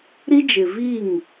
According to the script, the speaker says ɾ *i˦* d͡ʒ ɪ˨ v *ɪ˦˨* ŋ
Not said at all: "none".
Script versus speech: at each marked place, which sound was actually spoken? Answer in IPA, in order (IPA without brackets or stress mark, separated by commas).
i˦, i˦˨